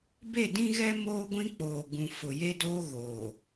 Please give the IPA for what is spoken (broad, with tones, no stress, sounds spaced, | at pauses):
b e˦˨ d ĩ˦ ɣ ɛ˦ m oː˦ ɡʷ ĩ˦ k͡p oː˨ ɡ ũ˨ f ʊ˨ j e˦ d oː˦ ɣ oː˨